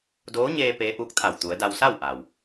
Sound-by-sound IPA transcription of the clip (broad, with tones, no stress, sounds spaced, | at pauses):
d oː˧˥ ɲ eː˧ p eː˧˥ ʔ uː˧˥ k̚ t̪ʰ a˧˩ w t̪ u˩˧ ə̯ d a˧ w s a˥˨ w ʔ a˩ w